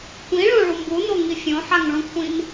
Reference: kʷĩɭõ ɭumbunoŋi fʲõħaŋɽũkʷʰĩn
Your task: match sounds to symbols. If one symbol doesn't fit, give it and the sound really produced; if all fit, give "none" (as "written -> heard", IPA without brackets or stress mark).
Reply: ɽ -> ɭ